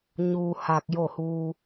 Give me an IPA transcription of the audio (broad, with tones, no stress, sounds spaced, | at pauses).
ɲ uː˧ h a˧ k̚ j o˥˨ h uː˧